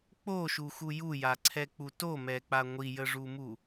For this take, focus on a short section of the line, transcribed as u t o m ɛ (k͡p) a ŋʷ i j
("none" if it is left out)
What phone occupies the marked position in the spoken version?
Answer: k͡p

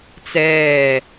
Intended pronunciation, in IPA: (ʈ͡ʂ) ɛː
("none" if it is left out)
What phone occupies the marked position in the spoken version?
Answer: t͡s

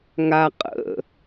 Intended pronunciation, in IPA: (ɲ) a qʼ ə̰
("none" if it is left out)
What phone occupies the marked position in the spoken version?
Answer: ŋ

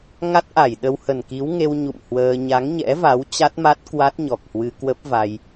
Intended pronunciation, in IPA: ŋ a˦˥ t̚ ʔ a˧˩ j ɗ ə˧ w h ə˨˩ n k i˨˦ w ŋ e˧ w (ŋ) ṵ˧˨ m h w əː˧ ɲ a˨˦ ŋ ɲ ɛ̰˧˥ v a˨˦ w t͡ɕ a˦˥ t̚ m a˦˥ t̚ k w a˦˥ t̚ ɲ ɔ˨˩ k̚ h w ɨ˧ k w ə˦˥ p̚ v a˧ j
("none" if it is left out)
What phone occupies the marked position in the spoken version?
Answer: ɲ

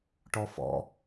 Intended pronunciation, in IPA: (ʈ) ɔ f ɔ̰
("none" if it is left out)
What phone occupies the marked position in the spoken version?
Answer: ʈ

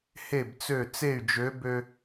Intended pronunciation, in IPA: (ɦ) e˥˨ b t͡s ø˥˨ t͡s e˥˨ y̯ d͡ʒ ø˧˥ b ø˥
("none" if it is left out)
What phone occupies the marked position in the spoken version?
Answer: h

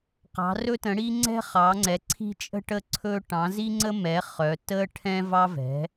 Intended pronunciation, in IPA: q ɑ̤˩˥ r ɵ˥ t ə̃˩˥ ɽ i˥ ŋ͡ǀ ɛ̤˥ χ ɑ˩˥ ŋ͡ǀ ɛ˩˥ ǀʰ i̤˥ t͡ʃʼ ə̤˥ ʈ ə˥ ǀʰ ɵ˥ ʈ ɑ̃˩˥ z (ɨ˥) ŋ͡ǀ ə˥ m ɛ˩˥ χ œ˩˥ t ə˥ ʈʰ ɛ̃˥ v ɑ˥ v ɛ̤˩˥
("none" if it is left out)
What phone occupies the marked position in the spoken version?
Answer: i˥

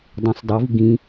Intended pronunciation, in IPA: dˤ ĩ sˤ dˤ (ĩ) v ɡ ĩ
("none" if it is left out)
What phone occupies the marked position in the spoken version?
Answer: i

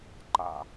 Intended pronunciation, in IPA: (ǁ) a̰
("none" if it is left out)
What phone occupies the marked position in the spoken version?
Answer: ǃ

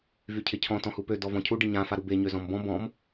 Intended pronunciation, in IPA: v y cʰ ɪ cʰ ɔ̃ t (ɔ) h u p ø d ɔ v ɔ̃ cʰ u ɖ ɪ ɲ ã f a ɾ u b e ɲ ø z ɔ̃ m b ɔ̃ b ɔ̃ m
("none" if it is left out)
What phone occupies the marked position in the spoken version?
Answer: ɔ̃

